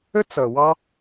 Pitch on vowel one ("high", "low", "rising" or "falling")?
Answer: high